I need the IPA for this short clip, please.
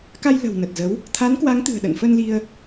k a˧ j l ə̤˨˩ w n ə˨˩ t̚ z ə˨˦ w | t̪ʰ a˨˦ n k w a˨˦ ŋ t̪ ɨ̤˨˩ ə̯ ɗ ə̰˧˨ n f ə˧ n l i˧ ə̯

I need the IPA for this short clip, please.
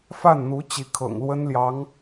f a˥˩ n n̪ u˧˥ t͡ɕ i˧˥ kʰ ɤ̰˨˩ ŋ l w ə˥ n l j ɑ˧˥ ŋ

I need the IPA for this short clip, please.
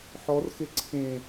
ħ ɔ r x e ǀʰ ẽ

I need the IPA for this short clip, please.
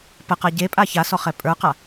p ə q a ɟ e pʼ a ç a s ɔ χ ɛ pʼ ə˞ q a

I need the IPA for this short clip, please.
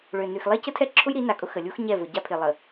ɭ ø˨ n y˨ x lˠ e˦ c ə˦ tʰ ɛ˦ ǁʰ ʊ˦ j ɾ i˨˦ n a˨ kʼ ʊ˦ x ə˨ lʲ u˦ x ɲ ɛ˦˨ v ʊ˨ ɟ a˦ pʰ ɪ˨ lˠ ə˨

